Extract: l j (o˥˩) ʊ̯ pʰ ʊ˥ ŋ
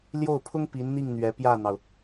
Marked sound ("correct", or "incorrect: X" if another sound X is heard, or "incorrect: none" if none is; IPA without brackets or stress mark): correct